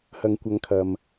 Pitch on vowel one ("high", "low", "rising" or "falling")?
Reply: low